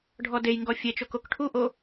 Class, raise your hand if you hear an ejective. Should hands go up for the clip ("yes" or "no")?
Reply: no